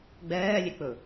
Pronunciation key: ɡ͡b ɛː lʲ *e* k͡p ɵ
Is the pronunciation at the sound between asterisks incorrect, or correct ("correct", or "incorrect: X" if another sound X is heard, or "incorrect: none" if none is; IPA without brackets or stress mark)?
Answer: correct